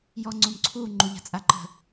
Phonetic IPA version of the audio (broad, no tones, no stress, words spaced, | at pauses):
jɔŋ͡ǀũmǀʰu ŋ͡ǃuʎa̤t͡sʼaǃə̤